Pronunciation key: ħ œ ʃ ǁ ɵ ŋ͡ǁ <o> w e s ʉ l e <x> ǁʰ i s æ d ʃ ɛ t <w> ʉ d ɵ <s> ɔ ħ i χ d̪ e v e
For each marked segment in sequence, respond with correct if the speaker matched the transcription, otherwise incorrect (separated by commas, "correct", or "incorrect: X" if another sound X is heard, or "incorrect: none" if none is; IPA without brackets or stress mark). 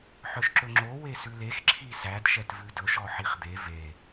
correct, correct, incorrect: v, incorrect: ʃ